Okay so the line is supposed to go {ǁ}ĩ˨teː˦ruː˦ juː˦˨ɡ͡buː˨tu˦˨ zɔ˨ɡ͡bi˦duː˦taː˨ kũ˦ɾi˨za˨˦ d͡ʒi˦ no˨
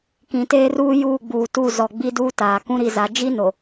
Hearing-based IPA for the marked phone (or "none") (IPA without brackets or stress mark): k